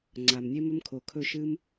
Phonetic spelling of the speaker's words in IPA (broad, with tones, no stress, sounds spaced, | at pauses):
ŋ͡ǀ a˩ m nʲ e˦ m ɵ˦ m kʰ o˩ kʰ ɵ˦˨ ʃ ɨ˦ m